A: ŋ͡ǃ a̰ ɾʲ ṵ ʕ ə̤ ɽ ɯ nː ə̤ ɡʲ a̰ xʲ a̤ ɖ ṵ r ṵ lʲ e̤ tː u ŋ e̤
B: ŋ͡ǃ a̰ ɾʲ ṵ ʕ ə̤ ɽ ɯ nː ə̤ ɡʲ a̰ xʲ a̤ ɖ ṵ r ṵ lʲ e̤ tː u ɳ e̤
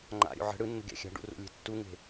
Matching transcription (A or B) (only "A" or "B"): A